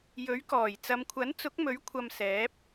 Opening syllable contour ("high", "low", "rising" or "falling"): rising